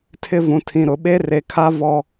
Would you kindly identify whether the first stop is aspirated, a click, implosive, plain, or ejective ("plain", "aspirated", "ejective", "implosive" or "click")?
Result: aspirated